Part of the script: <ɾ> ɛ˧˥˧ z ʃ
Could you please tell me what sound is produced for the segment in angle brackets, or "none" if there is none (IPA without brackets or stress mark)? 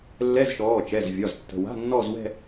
lː